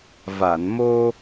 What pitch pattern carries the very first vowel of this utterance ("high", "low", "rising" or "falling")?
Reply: low